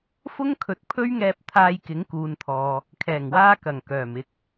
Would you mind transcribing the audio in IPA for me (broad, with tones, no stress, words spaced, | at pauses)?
fʊ˥ŋkʰɵ˨˥t̚ pʰɵ˥ɥŋɛː˧p̚ t̪ʰaː˧jkɪ˨˥ŋkuː˨nt̪ʰɔː˨ | kʰɛː˨˩ŋwaː˧kɐ˨˩ŋ kœː˨˩mɪ˧k̚